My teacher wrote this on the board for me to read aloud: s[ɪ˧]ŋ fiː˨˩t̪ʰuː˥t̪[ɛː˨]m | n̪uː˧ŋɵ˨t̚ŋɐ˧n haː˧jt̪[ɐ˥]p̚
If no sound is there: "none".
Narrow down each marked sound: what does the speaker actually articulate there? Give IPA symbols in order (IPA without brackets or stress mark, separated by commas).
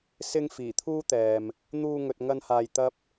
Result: ɪ˧, ɛː˨, ɐ˥